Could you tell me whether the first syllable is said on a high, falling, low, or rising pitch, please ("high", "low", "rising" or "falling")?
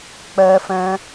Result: high